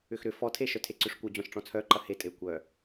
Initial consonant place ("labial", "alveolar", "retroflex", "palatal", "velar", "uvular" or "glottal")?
velar